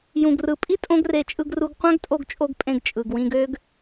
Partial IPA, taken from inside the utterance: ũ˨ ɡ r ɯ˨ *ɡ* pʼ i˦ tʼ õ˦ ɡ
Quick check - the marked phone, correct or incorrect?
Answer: incorrect